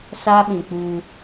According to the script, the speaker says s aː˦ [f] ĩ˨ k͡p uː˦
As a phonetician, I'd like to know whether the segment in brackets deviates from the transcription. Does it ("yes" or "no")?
yes